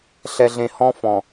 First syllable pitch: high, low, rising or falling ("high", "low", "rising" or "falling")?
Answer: low